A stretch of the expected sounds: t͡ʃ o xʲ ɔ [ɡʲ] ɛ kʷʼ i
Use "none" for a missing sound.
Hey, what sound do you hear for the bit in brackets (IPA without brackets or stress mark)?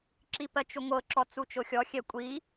xʲ